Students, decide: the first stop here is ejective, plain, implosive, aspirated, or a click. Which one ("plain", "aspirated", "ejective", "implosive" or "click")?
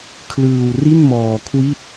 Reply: aspirated